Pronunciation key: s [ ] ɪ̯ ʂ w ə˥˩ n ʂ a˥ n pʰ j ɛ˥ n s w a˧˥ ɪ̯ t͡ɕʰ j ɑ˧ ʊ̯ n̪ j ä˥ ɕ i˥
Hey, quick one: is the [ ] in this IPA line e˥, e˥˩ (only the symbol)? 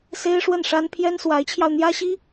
e˥